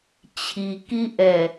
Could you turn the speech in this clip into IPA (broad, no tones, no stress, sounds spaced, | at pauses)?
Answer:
t͡ɕʰ i k i ʔ ɛ